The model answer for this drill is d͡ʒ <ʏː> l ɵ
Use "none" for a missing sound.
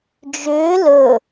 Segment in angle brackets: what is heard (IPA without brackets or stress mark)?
ʏː